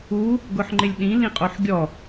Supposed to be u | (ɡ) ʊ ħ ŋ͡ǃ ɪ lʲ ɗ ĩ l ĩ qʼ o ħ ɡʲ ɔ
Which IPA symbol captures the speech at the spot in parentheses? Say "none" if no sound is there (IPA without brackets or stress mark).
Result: ɡ